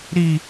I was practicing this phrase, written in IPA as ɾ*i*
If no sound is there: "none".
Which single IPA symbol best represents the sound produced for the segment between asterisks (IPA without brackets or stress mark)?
i